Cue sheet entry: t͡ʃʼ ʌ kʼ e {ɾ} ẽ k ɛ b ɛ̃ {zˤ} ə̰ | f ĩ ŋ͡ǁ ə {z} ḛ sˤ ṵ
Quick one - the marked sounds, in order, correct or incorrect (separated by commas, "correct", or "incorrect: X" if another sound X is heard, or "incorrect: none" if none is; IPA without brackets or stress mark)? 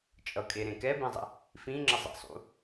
correct, correct, incorrect: zˤ